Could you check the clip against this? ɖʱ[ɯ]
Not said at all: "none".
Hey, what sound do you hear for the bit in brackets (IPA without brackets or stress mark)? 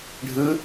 ɯ